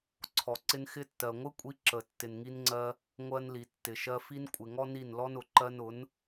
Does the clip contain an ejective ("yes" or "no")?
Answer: yes